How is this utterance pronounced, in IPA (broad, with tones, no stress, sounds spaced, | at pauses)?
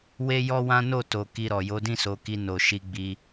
w e˦ j ɔ˦ w ã˦ n o˦˨ t o˨ k i˧ ɾ ɔ˨ j o˨˦ d ĩ˦˨ s o˨˦ k i˧ n o˨ ʃ i˧ ɡ͡b i˧